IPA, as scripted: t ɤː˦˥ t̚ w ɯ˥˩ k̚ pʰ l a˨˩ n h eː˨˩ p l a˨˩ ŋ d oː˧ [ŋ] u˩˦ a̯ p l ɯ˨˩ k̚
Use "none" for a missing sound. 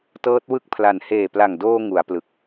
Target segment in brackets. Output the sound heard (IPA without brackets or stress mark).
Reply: ŋ